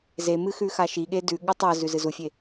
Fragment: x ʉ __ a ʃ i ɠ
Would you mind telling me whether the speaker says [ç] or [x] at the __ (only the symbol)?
x